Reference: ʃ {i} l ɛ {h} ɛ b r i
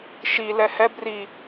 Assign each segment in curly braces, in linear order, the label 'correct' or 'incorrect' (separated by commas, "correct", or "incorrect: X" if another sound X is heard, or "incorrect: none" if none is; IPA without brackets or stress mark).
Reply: correct, correct